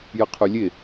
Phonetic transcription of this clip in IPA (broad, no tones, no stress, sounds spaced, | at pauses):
j ə qʰ ʉ lʲ e